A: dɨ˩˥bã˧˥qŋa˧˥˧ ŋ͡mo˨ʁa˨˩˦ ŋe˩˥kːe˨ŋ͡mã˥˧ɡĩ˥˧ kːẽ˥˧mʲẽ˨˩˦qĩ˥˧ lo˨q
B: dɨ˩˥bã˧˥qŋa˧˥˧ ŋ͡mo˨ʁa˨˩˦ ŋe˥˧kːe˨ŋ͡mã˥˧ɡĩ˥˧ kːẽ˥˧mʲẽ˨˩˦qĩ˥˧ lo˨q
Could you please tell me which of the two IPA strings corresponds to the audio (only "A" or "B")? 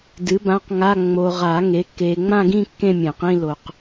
A